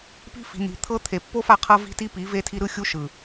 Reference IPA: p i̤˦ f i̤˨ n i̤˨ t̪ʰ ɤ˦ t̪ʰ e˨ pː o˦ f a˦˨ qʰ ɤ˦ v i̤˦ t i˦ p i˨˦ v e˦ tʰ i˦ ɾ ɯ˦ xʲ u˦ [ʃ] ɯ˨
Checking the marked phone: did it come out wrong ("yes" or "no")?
no